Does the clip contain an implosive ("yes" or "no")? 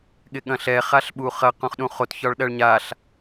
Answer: yes